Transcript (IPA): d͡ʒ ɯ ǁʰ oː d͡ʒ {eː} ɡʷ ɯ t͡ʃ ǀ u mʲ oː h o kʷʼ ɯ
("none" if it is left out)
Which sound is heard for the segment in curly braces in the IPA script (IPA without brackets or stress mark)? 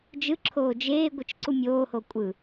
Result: eː